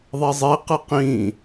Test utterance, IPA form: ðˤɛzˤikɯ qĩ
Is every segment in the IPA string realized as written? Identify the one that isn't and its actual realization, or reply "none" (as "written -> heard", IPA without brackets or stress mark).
k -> q